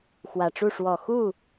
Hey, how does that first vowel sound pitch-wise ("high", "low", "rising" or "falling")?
low